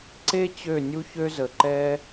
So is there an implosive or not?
no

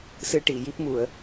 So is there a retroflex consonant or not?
yes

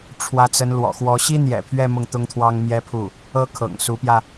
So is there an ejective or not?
no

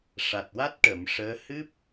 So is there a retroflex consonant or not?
yes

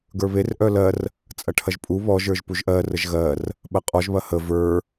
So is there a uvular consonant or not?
yes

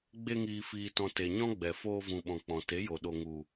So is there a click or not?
no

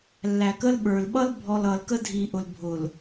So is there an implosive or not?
yes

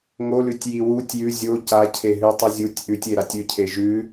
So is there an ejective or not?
no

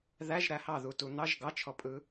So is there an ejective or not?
yes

